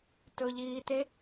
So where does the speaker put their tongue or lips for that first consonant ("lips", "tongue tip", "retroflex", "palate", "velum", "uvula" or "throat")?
tongue tip